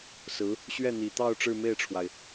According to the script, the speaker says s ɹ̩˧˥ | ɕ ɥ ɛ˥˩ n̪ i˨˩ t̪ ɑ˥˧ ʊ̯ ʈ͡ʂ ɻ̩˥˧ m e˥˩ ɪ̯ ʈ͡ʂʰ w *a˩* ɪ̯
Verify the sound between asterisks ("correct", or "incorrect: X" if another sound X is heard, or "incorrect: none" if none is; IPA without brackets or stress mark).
correct